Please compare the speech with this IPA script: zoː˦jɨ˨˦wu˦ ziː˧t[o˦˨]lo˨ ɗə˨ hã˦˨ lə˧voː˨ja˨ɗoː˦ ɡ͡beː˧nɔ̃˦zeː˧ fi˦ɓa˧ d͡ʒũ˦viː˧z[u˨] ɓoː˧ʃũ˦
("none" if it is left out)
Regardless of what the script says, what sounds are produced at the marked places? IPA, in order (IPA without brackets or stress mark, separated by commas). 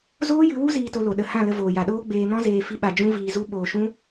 o˧, u˦